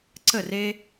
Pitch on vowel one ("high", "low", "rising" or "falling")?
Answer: falling